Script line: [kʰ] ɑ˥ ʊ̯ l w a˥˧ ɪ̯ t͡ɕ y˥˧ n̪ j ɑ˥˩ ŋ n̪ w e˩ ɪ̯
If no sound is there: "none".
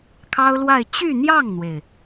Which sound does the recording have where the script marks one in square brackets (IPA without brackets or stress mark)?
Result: kʰ